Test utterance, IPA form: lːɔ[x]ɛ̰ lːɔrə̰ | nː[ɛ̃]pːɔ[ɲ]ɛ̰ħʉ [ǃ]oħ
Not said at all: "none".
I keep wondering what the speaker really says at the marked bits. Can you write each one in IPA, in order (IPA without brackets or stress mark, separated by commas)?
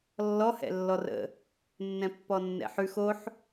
h, ɛ̃, nː, x